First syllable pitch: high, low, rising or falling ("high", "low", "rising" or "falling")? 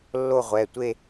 falling